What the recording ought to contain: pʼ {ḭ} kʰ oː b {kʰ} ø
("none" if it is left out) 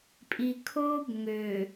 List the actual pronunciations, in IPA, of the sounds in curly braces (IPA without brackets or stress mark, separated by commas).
i, ŋ